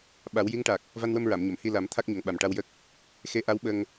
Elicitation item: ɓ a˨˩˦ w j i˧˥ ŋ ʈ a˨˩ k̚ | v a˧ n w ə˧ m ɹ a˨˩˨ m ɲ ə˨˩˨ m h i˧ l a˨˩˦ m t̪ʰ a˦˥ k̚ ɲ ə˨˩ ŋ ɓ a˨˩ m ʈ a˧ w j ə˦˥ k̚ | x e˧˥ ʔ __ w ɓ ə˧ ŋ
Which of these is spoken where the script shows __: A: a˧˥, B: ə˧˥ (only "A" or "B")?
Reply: A